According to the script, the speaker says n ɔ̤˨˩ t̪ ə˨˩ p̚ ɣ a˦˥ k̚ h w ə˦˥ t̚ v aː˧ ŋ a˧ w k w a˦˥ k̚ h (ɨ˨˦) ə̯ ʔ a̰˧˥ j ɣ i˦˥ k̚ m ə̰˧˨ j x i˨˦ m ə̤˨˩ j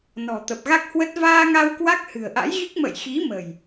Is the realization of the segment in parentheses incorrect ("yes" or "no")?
yes